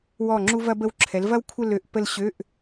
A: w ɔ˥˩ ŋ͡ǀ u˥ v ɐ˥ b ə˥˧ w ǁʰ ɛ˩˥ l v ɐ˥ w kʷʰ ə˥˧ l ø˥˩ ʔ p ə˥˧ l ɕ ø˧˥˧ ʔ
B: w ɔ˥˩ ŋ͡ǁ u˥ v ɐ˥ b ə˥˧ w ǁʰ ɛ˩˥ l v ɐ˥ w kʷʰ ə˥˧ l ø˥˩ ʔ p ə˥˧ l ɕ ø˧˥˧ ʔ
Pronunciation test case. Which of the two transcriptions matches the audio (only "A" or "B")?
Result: B